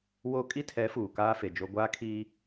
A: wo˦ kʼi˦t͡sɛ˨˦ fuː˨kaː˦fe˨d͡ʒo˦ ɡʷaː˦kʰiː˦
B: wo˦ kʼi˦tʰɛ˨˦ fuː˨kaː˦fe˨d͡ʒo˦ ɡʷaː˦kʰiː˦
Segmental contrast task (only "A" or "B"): B